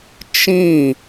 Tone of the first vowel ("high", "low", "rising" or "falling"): falling